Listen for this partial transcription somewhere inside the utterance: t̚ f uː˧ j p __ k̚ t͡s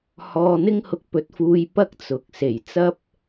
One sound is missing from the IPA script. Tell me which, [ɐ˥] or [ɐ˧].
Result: ɐ˥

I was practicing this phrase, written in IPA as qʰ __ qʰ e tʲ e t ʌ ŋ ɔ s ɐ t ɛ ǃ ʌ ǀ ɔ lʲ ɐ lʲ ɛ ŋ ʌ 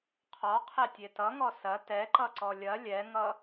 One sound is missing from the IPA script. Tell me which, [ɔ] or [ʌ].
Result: ɔ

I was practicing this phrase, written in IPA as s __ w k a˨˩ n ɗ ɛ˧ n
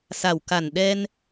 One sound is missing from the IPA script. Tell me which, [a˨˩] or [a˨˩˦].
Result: a˨˩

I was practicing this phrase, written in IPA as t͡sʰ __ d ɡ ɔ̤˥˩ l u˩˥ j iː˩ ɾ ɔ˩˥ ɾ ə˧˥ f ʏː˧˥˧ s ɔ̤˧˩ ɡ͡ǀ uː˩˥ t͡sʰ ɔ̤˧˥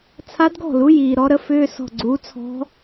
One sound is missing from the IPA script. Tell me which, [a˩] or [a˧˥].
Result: a˧˥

